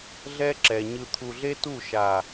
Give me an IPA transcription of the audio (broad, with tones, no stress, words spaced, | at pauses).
ɮɛ˦ǁɛ˨ ɲɯ˨t̪ʰu˨ɮe˦tu˦˨ ʃa˨